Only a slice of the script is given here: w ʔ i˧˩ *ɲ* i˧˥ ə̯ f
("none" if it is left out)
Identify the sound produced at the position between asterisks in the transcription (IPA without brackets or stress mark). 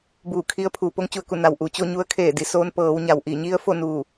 ɲ